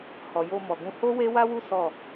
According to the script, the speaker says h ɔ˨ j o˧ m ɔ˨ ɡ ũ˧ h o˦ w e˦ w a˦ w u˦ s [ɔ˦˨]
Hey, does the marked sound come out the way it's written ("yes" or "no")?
yes